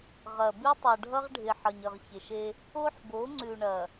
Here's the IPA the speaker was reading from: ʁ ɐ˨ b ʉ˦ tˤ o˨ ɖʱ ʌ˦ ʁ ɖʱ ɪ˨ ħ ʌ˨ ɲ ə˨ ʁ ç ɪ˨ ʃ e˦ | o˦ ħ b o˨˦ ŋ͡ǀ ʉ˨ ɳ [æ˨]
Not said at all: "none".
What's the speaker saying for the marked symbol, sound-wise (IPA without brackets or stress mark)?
ɐ˨